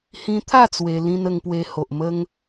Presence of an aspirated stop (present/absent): present